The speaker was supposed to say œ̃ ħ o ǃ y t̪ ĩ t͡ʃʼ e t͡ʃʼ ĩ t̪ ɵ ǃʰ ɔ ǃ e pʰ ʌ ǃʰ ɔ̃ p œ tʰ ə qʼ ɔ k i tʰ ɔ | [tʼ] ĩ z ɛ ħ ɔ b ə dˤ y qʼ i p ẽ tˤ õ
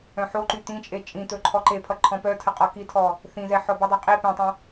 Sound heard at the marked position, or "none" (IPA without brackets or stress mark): θ